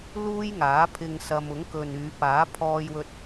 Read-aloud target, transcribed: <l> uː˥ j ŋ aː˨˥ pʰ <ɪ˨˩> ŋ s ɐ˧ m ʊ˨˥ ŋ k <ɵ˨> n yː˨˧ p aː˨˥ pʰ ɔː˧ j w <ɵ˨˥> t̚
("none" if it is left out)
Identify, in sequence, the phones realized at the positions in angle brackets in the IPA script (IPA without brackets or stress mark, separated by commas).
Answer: l, ɪ˧, ɵ˨, ɵ˧